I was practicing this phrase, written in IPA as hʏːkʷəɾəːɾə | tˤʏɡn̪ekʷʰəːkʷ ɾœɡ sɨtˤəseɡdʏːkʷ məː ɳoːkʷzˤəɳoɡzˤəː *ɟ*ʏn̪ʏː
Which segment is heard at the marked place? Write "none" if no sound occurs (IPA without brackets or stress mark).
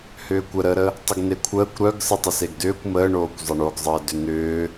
d